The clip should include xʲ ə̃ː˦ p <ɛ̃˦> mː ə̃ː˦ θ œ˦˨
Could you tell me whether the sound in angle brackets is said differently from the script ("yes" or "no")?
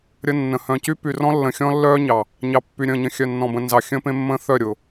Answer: yes